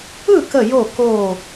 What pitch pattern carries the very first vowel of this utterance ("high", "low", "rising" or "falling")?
falling